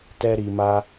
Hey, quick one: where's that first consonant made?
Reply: tongue tip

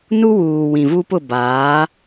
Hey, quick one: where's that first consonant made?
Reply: tongue tip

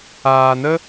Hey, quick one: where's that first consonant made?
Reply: tongue tip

